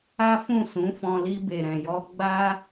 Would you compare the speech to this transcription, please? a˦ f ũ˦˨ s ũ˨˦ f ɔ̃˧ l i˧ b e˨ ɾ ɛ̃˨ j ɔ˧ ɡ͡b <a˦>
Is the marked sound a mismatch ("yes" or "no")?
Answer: no